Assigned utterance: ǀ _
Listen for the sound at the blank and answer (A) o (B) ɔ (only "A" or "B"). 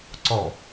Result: B